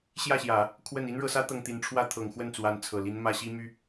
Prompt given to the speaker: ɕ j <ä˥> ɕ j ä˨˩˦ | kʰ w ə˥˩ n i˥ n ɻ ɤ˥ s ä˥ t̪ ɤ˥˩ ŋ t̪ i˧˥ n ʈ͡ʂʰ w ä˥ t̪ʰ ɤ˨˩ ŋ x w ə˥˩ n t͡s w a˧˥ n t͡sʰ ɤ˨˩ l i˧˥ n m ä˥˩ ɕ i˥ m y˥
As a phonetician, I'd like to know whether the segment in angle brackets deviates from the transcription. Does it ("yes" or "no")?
yes